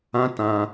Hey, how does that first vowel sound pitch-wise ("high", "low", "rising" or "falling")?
high